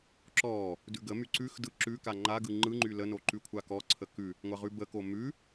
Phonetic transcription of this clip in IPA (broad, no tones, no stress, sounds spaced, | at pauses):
ǁ ɔ | d ʉ ɡ ə m y ǀ ʉ x d ɯ ǁ ʉ k a ŋ͡ǃ a ɡ ɯ ŋ͡ǃ ɯ ŋ͡ǃ y l ə n o ǃ ʉ kʷʰ a k ɔ ǀʰ ə k ʉ | ŋʷ a ʁ ʉ b ə k o m ʉ